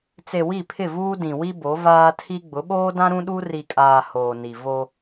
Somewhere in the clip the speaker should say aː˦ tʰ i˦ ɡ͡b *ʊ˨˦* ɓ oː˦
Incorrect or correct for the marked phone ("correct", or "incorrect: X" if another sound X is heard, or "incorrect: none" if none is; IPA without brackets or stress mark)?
correct